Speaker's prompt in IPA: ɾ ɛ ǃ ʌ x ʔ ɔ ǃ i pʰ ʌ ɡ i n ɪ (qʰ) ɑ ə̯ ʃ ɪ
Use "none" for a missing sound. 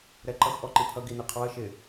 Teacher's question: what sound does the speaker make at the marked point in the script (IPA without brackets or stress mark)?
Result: qʰ